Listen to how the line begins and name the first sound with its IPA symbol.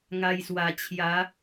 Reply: ŋ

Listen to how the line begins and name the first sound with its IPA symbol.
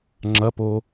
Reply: ŋ͡ǁ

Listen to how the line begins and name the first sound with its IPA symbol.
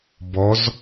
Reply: b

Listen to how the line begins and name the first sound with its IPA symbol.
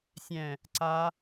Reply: sʲ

